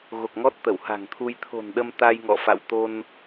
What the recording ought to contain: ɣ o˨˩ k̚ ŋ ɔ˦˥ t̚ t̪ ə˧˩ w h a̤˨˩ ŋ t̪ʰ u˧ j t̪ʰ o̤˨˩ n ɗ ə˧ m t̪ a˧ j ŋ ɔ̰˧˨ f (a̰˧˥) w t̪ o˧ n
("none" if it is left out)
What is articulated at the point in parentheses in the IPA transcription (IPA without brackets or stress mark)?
a̰˧˨